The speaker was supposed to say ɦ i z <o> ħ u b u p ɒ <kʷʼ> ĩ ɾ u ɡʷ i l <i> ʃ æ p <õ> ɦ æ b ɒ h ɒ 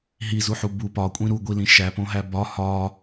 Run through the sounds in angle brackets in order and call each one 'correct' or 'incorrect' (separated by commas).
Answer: incorrect, correct, incorrect, correct